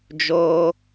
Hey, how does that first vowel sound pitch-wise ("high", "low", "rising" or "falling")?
high